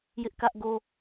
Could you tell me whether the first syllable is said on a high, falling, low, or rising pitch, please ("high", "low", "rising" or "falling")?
high